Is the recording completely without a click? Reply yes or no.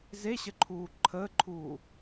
no